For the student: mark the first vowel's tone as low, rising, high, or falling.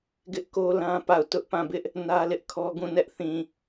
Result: high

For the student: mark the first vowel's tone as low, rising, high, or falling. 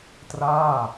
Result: falling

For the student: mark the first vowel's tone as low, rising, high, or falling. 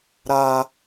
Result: low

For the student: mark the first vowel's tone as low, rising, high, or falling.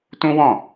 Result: high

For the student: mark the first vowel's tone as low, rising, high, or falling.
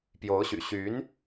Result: rising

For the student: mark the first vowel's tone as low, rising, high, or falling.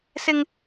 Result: high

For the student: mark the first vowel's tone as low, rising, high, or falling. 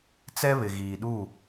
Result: high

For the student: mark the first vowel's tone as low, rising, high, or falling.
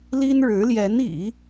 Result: high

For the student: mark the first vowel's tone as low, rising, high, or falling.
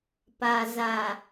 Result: low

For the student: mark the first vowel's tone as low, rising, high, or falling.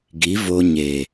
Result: rising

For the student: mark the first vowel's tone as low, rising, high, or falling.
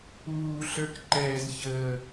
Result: low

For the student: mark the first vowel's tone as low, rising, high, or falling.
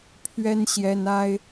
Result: high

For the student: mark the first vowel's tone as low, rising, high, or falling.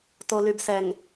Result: low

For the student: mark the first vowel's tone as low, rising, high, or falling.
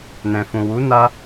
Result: low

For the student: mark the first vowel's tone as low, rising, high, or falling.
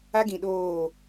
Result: high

